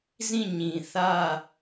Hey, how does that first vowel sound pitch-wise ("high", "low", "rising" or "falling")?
falling